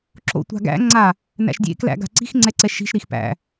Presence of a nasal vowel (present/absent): absent